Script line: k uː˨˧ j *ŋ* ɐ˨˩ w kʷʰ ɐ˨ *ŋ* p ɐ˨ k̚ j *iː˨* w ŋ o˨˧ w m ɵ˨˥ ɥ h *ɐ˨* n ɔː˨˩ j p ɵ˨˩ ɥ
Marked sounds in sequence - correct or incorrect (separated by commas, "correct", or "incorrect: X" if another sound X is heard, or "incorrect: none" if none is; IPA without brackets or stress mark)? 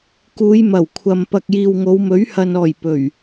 incorrect: m, incorrect: m, correct, correct